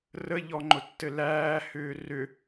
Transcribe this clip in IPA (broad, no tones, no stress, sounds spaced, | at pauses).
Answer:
r ə ʎ ɔ ŋ͡ǃ ʊ tː ɘ l æː h ʏː r ʏ